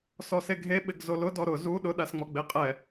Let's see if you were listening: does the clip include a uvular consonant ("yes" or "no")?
yes